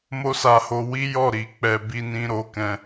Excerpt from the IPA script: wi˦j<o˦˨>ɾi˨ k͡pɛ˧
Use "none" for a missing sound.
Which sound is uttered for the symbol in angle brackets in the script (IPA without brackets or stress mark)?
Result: ɔ˦˨